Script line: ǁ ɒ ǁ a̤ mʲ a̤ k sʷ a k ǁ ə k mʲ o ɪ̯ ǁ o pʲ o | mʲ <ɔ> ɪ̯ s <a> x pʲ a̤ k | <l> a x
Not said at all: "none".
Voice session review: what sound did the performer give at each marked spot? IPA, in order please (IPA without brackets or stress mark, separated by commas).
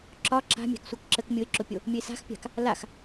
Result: ə, a̤, l